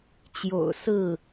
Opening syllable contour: low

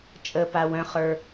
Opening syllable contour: low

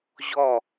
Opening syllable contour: falling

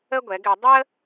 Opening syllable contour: high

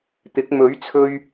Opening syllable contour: rising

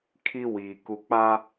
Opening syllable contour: high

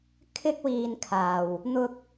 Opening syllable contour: high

